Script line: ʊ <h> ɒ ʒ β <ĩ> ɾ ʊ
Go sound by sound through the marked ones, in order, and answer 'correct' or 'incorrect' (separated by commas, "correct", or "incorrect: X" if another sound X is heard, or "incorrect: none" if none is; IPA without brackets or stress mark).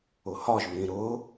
correct, correct